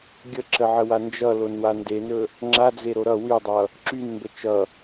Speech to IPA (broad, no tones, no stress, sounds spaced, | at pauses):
ɡʲ ə ǁ ə ʕ ə w a n d͡ʒ ʌ l o n w a n d e n ɵ | ŋ͡ǁ a d͡z e ɾ o ɾ ʌ w y dˤ ʌ | ǁ y n m b ə t͡ʃ ʌ